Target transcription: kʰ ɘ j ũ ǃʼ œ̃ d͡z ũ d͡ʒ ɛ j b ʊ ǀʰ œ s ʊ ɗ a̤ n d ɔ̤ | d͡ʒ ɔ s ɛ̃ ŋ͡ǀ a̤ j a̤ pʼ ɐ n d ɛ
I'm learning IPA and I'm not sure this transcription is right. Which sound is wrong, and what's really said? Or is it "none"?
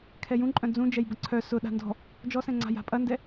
ɘ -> ɛ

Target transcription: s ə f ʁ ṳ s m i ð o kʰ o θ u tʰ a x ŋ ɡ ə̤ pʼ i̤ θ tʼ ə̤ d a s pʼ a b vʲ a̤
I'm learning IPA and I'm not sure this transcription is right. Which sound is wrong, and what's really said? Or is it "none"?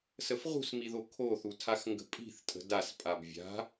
none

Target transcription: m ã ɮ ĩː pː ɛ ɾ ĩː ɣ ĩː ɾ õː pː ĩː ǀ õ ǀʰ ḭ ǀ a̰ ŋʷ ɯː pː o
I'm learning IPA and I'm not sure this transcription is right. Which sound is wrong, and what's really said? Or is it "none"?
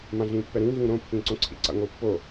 none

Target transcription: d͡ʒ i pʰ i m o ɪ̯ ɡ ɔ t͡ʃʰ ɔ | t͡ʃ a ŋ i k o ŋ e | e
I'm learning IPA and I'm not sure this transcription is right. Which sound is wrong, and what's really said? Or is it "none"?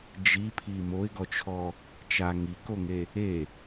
none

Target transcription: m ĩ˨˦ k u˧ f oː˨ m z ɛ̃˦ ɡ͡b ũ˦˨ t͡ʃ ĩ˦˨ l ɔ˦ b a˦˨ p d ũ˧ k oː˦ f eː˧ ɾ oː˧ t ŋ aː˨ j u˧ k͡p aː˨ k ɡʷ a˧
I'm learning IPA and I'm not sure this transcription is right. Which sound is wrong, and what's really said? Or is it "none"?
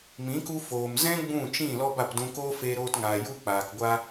none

